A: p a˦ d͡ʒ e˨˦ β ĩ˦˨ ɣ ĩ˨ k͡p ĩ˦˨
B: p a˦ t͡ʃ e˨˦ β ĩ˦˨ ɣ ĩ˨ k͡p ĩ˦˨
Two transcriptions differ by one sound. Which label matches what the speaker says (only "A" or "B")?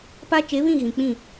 B